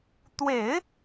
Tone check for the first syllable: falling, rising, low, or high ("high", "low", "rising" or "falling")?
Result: low